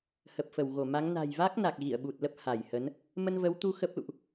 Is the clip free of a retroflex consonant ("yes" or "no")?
yes